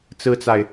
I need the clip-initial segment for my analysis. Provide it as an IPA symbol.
t͡s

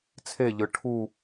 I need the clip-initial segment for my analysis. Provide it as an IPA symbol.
t͡sʰ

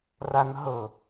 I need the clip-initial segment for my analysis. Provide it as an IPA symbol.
r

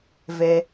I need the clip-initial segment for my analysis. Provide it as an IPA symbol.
v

